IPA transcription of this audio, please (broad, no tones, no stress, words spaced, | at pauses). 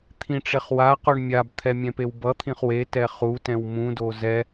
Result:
t̪ʰĩʈ͡ʂeχwaqoɳ mʲabt̪ʰɛ mʲɛ̃pewbʌt̪ʰĩχ wetɛ χutɛ̃w mũdo zɛ